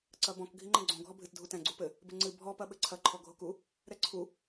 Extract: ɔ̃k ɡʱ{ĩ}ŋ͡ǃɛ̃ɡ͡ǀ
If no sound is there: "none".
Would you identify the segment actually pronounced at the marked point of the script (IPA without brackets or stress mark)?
i